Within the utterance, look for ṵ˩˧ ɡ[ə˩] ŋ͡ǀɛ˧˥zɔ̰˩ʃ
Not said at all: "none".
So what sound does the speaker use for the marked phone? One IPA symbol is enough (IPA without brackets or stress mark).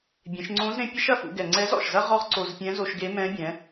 ɛ˩